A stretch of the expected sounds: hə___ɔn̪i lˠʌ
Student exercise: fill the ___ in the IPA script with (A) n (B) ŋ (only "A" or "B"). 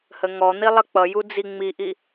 B